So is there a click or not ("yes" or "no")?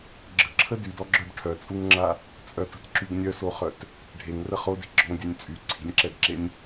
yes